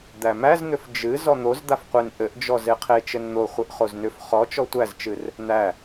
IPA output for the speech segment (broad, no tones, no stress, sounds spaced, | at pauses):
d̪ æ m æ z n̪ ʏ f d͡ʒ ɨ z ɔ n̪ o z d̪ a f qʷ e n ʔ ɘ ʔ d͡ʒ ɔ z e qʰ e t͡ʃ ɘ n n̪ o χʷ ɘ ʔ χ o z n ʏ f χ ɔ t͡ʃ ɔ tʷ æ z t͡ʃ ɨ r | n̪ æ